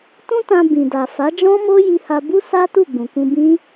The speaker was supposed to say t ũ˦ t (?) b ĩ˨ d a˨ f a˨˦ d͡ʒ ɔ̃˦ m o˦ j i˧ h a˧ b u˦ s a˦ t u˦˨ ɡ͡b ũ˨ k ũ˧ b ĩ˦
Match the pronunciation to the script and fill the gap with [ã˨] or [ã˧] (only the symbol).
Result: ã˧